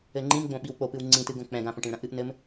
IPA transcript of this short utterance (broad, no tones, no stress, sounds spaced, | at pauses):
ɘ ŋ͡ǃ ĩ m ɡ͡b õ ɓ i w k͡p o p ɨ w ŋ͡ǀ ĩ t ɨ ɡ õ k͡p ɛ̃ ɡ ã p õ ʈ ĩ ɭ ɾ ɐ̃ ʔ ɨ ʔ n ɘ m